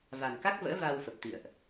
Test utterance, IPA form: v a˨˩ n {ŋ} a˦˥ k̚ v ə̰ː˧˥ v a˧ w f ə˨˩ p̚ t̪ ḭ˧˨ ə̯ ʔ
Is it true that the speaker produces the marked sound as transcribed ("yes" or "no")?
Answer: no